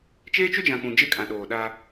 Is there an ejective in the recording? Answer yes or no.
yes